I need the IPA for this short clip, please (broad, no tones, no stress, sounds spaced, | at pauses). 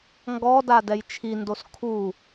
ŋ ɡ ɔ d a d ɛ j t͡ʃʰ i n d o s kʰ u